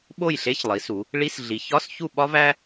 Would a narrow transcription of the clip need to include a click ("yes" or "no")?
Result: no